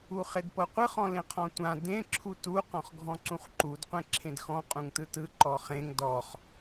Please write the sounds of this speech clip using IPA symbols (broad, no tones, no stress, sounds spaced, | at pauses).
u χ e d p ɤ qʷ ɯ χ ɔ̃ l ẽ qʰ ɔ̃ tʷ ã d ẽ ǁʰ u t u q ɔ̃ χ ɡʱ ɔ̃ ǀ ũ χ ǃ u d qʷ ẽ ǁʰ ẽ d x ɔ̃ qʼ ũ ŋ t ɯ t ɯ ǃ ɔ χ ẽ ŋ d ɔ χ